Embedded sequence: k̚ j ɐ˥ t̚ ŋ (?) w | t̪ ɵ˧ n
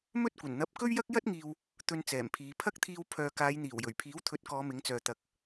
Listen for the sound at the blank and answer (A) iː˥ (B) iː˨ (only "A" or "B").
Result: B